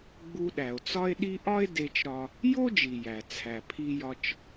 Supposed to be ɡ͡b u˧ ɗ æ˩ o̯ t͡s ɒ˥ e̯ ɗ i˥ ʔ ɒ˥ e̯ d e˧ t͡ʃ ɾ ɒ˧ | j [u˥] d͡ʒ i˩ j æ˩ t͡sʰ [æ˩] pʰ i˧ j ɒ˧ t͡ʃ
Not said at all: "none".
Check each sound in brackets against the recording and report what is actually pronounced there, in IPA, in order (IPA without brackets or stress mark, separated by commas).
o˥, æ˩